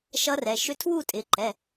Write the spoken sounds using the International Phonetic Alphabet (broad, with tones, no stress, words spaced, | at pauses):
ʃʌ˧˥rɛ˩˧˩ ʃʏ˧˥tʰwu˥˨tʼɪ˩˧˩ ǃɛ˩˧˩